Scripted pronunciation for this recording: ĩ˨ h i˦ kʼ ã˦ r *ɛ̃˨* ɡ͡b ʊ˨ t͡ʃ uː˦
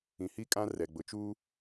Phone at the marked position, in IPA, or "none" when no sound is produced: ɛ˨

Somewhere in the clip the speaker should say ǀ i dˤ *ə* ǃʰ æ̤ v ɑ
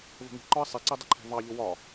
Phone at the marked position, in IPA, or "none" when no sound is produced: ə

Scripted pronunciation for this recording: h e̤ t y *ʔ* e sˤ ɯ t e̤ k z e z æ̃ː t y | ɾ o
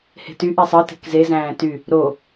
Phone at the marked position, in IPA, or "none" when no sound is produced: ʔ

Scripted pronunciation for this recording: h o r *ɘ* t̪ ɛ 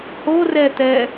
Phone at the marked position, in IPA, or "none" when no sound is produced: ɛ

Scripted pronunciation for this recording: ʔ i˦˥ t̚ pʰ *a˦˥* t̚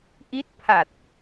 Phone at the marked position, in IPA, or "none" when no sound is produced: a˨˩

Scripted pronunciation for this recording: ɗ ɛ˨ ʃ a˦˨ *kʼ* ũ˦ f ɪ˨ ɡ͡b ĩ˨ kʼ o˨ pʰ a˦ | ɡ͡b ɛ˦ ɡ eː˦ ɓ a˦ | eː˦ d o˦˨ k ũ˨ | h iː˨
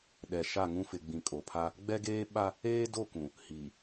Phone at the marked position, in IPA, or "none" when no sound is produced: ŋ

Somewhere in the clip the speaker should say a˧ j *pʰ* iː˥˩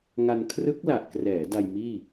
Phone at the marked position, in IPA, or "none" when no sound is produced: m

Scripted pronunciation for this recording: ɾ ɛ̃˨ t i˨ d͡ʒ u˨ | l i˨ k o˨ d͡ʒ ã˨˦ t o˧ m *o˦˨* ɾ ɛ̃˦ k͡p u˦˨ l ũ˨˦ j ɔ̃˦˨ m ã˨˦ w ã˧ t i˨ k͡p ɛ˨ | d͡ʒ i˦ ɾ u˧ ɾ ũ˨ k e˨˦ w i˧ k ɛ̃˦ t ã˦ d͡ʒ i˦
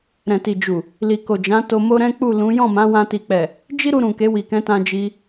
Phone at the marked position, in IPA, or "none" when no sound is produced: o˦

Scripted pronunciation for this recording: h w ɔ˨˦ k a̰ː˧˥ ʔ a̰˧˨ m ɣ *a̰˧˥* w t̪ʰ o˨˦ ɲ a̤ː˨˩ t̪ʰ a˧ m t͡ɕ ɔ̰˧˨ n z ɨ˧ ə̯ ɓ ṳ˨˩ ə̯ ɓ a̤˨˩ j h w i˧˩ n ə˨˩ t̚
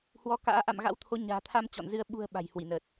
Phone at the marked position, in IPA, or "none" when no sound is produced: a̰˧˥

